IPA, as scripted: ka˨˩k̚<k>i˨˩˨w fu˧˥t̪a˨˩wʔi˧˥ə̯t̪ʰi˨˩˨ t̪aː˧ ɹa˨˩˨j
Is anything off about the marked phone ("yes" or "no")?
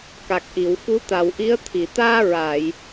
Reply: yes